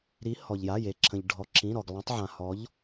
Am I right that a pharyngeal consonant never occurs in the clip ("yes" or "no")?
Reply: no